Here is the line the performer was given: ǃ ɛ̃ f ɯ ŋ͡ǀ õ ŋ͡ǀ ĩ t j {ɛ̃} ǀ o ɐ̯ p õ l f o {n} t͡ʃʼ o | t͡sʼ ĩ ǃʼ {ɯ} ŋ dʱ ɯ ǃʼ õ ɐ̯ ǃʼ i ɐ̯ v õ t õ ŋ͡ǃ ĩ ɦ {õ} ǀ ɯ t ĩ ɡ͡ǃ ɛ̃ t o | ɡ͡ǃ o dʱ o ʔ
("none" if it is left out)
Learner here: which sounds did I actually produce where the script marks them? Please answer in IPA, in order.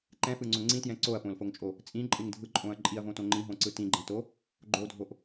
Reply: ɛ̃, ŋ, ɯ, õ

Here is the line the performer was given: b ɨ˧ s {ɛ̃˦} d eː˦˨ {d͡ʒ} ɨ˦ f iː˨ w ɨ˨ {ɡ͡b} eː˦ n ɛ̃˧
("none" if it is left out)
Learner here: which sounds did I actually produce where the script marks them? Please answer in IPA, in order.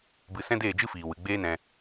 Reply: ɛ̃˦, d͡ʒ, ɡ͡b

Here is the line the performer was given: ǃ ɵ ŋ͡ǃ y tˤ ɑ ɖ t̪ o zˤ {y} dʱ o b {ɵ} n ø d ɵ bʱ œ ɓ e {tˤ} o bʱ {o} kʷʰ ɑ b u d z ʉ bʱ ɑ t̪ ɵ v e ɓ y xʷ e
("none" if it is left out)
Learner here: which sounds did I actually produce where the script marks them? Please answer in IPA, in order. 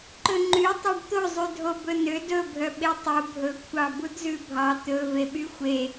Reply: y, ɵ, tˤ, ɵ

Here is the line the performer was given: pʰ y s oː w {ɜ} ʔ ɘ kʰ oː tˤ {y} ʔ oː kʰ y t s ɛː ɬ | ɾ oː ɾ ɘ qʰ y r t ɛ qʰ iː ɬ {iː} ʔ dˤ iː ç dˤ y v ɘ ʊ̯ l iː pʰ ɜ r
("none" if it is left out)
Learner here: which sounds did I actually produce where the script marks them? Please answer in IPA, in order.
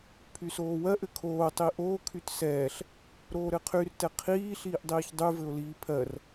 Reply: ɜ, i, iː

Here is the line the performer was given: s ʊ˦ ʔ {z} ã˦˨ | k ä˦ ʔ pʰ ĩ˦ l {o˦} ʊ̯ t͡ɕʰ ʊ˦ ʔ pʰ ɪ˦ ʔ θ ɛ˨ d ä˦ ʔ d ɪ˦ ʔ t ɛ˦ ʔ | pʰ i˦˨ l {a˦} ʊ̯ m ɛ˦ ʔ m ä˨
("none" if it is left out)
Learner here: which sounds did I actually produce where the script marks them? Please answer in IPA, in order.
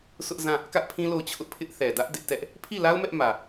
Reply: z, o˦˨, a˦

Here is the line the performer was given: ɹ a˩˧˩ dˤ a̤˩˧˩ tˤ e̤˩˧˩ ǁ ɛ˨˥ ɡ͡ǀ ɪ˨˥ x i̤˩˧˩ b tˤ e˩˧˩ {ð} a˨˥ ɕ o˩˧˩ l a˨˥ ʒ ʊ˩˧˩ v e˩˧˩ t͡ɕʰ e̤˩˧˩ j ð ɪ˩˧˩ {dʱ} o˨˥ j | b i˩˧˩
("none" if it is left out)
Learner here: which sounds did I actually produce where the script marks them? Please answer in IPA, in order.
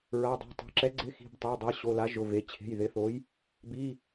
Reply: dˤ, θ

